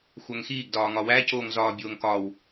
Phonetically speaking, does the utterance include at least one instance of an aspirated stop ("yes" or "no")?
no